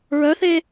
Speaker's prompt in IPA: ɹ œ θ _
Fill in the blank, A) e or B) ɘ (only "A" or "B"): A